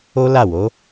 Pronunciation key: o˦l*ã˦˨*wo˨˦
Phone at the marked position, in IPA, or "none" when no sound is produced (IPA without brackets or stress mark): a˦˨